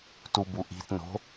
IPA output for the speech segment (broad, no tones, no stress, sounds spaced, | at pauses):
t u b u ʔ i̤ t n o̤